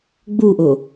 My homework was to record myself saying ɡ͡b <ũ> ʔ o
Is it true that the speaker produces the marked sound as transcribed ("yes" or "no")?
no